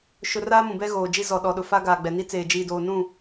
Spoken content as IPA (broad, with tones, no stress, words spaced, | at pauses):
ʃʊ˦ raː˦mũ˨bɛ˦ ɣoː˨ d͡ʒi˦zɔ˨ ɗɔ˨ɗʊ˨fa˦ ɡaː˨ɡ͡bɛ˨ni˦t͡seː˨ d͡ʒiː˨doː˨nũ˦˨